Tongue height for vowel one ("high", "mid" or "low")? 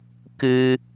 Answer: high